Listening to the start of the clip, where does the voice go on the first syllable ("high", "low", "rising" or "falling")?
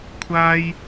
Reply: high